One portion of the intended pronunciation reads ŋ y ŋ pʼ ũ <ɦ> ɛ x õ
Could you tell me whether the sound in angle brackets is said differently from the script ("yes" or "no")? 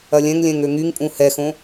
yes